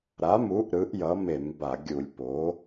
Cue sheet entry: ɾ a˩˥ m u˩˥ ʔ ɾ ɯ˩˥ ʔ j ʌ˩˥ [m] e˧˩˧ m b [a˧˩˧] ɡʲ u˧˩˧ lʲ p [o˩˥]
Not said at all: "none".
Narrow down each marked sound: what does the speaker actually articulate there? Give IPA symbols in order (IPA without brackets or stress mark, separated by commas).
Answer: m, a˧˩˧, o˩˥